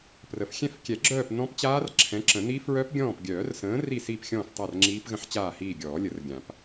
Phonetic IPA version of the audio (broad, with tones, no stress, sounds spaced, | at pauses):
p r ə˩ f xʲ ɛ̃˦˨ f kʲ ɛ˨˩˦ ɡ͡ǁ œː˦˨ p n ɔ̃˦˥ p t͡ɕ aː˦˥ r ǁʰ ɛ̃˨˥ ǁ ə̃˨˩˦ n i˦˥ f ɹ œ˦˥ p ɡʲ ɔ̃ː˦˨ p ɡʲ œː˨˩˦ r s ə̃ː˨˥ r i˦˨ s iː˦˨ p xʲ ɔ̃ː˦˨ f tˤ a˦˨ r ŋ͡ǁ iː˦˥ p ɣ ə̃˦˥ ħ t͡ɕ aː˦˨ h iː˦˨ ɡʲ ɔː˨˩˦ lʲ ə˨˩˦ r ɡʲ ã˨˩˦ p